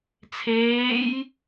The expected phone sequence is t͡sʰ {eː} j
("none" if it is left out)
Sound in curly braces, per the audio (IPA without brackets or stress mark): eː